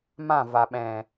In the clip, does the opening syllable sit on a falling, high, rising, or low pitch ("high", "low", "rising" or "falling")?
falling